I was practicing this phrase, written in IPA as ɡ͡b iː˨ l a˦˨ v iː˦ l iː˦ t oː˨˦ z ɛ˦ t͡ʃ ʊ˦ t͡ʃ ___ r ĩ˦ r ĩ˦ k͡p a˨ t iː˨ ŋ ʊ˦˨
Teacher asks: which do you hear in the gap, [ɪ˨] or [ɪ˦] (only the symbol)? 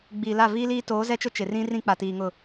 ɪ˨